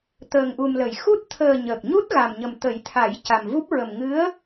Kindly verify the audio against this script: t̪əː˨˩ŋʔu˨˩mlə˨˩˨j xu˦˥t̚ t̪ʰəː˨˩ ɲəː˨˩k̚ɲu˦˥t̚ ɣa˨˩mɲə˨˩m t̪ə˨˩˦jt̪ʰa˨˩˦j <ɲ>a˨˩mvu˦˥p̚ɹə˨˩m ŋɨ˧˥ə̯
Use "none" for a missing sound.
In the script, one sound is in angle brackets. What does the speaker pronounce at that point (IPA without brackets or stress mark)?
c